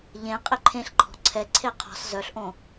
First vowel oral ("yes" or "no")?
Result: no